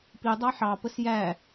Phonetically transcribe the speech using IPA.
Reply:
pidˤɑ ħɑpəs jæ

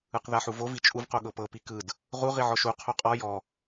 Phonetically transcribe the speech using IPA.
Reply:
ɯqðaħuvo vit͡ʃʼuv qoɠɤpɤ pikɯd | ʁu ʁiʕɔʃu qʰoqʼɔ jɔ

